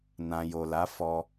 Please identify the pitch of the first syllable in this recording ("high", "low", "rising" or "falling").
low